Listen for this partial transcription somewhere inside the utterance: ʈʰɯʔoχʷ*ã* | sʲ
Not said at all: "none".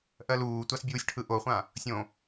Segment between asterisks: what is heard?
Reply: ã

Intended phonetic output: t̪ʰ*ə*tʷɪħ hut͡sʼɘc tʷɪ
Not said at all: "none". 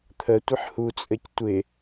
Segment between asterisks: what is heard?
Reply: ə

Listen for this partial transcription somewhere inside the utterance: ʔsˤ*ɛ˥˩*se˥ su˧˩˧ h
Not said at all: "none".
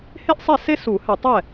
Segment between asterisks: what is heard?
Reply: ɛ˥˩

